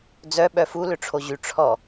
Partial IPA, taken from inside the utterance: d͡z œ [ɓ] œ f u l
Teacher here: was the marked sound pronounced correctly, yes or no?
yes